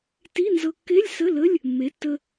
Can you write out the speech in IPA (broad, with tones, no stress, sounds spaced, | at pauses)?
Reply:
t i˧˥˧ n z ɤ˧ kː e˧˥˧ lʲ s ə˧˥˧ l ə˧˥˧ lʲ | mː e˩˥ tː ə˧